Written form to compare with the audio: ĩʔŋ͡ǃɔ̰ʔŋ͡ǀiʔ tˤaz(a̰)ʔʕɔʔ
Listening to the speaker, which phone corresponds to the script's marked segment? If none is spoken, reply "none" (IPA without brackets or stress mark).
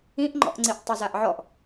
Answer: a